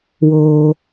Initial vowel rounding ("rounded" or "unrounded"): rounded